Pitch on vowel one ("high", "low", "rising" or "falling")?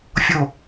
falling